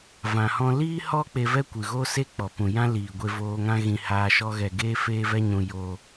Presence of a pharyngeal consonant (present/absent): absent